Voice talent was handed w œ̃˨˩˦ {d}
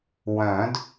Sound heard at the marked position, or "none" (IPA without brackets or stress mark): d